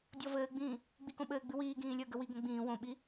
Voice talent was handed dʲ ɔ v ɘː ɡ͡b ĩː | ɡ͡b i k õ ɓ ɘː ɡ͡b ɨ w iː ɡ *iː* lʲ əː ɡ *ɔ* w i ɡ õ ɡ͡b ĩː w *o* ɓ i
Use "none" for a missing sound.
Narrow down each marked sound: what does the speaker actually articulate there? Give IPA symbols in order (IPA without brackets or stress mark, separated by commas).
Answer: ĩː, ə, õ